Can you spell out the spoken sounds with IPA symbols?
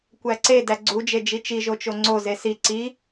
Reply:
kʷ æ ǀ e d æ ɡ͡ǀ u d͡ʒ e d͡ʒ i t͡ʃ i ʒ o t͡ʃ o ŋ͡ǀ o z e s i ǀ i

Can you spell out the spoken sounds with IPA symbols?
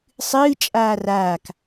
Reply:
sˤ ɨː t͡ʃʼ aː r aː k

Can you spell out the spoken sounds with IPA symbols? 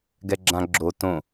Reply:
ɡ ɛ ɡ͡ǁ ã ɡ͡ǁ o t õ

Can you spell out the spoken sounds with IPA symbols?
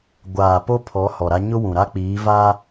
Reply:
ɡʷ aː˨ p o˦ pʰ ɔ˨˦ h ɔ˨ ɾ a˦ ɲ ʊ˦ w ũ˨ ɾ a˦ k͡p iː˨˦ v a˦

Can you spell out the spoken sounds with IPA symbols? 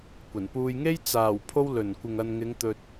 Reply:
kʷ ɐ˨˩ n p uː˨ j ŋ e˥ j t͡s aː˨˩ w pʰ o˧ w l ɵ˨˩ n kʷ ɪ˨ ŋ ɐ˨ n ŋ ɪ˨˧ ŋ t̪ ɵ˨ t̚

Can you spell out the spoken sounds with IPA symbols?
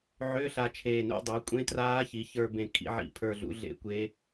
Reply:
ʕ ʏː˧˥˧ ɬ a˧ t͡ʃʰ eː˧˩ n ṵ˧˥˧ dˤ e˩˥ kʷʼ ẽ˦˥ t r aː˦˥ ç i˩˥ ç ə˞˧ b ẽ˧ kʰ ḭ˩˥ ʕ ḭ˧˩ pʰ ə˞˧ ɮ ṵ˩˥ ɮ ḛ˦˥ kʷ e˦˥

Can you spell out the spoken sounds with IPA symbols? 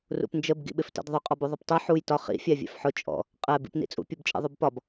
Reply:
r ṵ p n d͡ʒ ə b ɡ ḭ ɓ ɪ f t ɛ̰ d ðˤ ʊ qʼ ɔ b u ðˤ ʊ p tˤ ɛ ħ u j t ɒ χ ḭ fʲ æ vʲ ɛ̰ f ħ ʊ t͡ʃʼ ɔ̰ | qʼ ɛ b ḭ p n ḭ t͡sʼ ṵ pʲ u b t͡ʃʼ ɛ̰ ðˤ u b p ɒ b

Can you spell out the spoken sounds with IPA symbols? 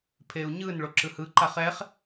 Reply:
pʰ e u̯ ɲ ɯ n ɭ o ǁ ɯ h ɯ ǃ a χ ɛ χ

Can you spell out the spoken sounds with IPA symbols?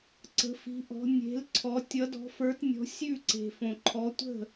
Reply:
ǀ ə̤˨˦ f i̤˨˦ ʔ ɔ̤˨˦ nʲ e̤˨˦ l ǀʰ ɔ˨˦ tʲ ʌ˨˦ d ɔ̤˨˦ f ə˞˨˦ t nʲ ɔ̤˨˦ sʲ ʉ˥˨ ǀ e̤˨ f õ˨ ǃʰ ɔ˨˦ tʷ ə̤˥˨

